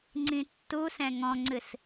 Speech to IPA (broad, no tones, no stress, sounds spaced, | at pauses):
ŋ͡ǀ ĩ tː u s ɛ̃ ŋ ɔ̃ ŋ͡ǀ ɨ s